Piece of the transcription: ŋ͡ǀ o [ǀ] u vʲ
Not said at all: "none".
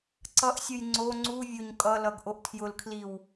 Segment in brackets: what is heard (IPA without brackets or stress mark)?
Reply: ŋ͡ǀ